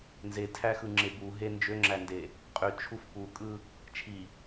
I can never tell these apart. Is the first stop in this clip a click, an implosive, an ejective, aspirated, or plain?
aspirated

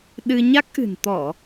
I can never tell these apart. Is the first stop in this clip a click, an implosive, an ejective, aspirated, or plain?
implosive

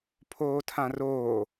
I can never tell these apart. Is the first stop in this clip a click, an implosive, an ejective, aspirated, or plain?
aspirated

